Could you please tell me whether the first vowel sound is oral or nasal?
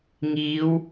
oral